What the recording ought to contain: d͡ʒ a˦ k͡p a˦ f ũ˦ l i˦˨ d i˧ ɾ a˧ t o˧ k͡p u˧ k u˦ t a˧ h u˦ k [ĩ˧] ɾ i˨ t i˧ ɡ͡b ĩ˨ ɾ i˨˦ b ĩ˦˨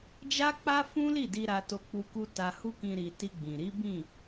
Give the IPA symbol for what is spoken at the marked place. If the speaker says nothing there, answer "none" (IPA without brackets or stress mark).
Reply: ĩ˧